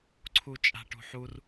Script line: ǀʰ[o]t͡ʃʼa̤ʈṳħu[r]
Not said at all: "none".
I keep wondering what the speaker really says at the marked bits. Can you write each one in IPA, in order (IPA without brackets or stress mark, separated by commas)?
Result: u, r